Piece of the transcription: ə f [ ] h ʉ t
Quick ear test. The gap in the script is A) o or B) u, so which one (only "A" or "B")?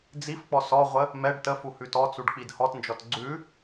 B